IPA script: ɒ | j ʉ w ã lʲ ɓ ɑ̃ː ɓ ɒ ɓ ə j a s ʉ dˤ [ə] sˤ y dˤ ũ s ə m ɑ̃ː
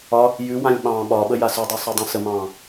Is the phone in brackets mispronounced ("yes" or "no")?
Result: yes